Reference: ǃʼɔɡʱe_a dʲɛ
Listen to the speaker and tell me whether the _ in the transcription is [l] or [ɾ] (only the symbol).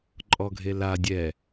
l